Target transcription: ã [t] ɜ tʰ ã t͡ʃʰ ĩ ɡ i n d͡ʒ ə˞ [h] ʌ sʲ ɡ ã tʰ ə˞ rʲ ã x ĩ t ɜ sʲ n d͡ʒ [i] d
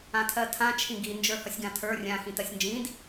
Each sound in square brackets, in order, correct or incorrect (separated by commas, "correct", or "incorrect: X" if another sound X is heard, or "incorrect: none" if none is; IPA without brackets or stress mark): incorrect: tʰ, correct, incorrect: ĩ